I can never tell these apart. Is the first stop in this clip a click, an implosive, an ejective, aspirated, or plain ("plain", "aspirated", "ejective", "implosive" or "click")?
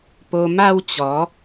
plain